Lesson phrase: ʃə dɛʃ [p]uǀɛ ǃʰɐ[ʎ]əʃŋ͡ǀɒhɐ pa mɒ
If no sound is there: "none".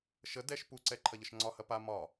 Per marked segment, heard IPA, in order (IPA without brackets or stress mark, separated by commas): p, ʎ